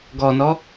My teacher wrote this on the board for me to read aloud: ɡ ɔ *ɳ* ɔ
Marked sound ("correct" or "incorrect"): incorrect